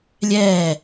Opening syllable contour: falling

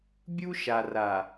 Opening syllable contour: high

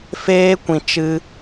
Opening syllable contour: high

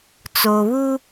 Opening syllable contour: low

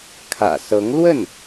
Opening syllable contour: low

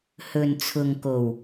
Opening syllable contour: low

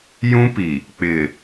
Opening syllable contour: high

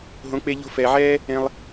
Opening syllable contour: rising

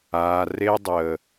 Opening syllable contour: low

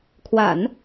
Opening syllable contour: low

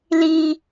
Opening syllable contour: high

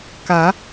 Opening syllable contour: rising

